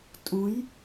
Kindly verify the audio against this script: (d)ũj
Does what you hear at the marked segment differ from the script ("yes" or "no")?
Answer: yes